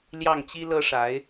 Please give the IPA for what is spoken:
l j ɑ˥˩ ŋ t͡ɕ i˥ l ɤ˥ ʂ a˧˥ ɪ̯

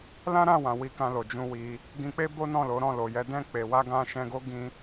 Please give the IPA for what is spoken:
l ã˦ ɾ ã˦˨ w ã˨ w i˧ k ã˧ l o˨ d͡ʒ ũ˧ w i˧ | ɡ ĩ˧ k͡p e˦ b o˦ n ɔ̃˦˨ l o˨˦ ɾ ɔ̃˦˨ l o˨ j ɛ˧ d ɛ̃˧ k͡p e˨ w a˧ ɡ ã˧ ʃ ɛ̃˧ ɡ o˦ ɡ ĩ˦

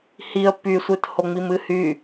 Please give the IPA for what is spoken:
h i ə̯ p y sʷ ɨ t h o ŋ͡m i m ɨ h y

